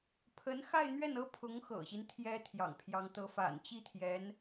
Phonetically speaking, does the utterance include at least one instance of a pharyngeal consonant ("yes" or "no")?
no